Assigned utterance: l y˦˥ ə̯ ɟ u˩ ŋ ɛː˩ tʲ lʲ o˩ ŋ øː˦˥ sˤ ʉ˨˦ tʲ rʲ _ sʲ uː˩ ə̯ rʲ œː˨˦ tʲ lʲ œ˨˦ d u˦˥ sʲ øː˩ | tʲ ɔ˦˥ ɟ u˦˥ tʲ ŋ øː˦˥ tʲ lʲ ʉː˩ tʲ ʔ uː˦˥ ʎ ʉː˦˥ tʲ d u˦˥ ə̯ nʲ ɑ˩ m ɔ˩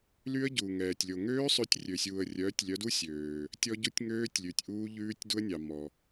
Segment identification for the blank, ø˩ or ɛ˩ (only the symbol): ø˩